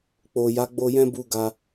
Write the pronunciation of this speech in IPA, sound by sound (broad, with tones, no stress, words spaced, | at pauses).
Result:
k͡po˨ja˨˦ ɡ͡bo˧jɛ̃˦bu˧ ɡa˧